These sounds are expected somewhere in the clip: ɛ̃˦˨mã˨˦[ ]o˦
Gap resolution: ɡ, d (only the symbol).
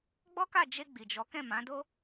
d